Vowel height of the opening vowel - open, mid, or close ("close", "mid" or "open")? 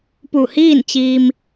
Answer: close